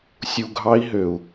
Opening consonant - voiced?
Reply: no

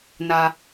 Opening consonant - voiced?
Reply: yes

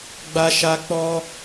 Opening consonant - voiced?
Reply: yes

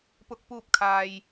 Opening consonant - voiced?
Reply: no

